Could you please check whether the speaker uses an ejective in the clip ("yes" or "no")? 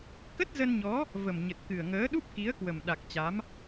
no